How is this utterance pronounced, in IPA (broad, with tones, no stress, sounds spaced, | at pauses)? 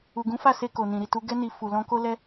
u˨ ɡ ũ˨˦ f a˦˨ s e˧ k o˨ n ĩ˨ ɾ i˨ t u˧ ɡ ɛ˧ n i˨ f u˨ l ɔ̃˧ k o˦ l ɛ˧